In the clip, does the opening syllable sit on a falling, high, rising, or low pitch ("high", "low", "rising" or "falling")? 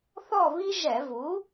falling